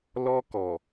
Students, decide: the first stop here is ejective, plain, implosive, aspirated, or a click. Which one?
plain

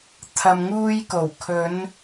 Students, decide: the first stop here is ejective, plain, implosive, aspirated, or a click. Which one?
aspirated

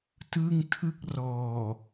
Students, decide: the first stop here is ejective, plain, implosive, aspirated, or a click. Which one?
plain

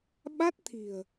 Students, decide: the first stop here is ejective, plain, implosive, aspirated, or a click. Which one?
implosive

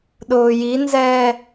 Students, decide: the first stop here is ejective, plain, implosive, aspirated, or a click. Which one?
implosive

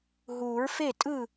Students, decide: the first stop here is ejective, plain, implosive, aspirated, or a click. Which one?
ejective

